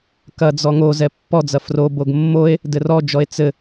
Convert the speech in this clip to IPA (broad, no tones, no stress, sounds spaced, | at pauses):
k ɐ d͡z ɔ ŋ o z ɛ pː ɔ d͡z ɐ f r o b o ɡ mː o e̯ | d ɘ r ɔ d͡ʒ ɔ e̯ t͡s ɘ